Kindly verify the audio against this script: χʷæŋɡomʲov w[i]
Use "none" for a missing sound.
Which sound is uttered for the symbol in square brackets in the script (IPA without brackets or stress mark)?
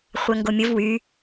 y